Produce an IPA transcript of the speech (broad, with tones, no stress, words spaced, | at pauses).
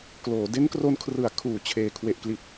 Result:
kloː˩˦ de˦˥nkro˧nkʰrɯ˩˦a̯ kʰuː˨˩t͡ɕʰeː˨˩ kʰwe˨˩ʔkli˨˩t̚